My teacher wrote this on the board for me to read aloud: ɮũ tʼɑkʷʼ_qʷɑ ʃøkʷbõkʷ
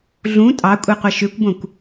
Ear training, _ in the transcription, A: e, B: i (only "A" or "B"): A